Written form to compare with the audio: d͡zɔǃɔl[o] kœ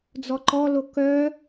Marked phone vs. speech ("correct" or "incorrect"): correct